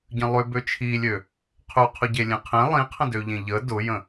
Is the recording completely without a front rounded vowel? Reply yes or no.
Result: no